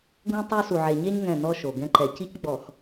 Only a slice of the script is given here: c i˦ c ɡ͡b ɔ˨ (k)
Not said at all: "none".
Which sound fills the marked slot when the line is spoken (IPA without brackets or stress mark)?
x